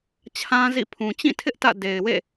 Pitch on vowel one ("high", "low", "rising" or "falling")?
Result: high